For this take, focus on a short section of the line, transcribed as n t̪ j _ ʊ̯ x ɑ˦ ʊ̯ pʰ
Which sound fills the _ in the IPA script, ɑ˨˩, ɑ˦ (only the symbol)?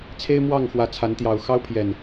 ɑ˨˩